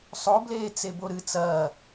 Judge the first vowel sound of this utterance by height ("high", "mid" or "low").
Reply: mid